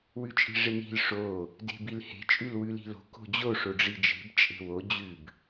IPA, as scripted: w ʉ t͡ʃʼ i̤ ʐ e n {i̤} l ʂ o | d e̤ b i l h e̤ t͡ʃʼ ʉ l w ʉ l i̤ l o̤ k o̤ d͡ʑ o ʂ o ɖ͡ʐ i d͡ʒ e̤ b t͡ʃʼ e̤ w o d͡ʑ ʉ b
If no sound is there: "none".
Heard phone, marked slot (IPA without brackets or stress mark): i̤